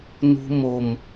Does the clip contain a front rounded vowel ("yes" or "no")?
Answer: no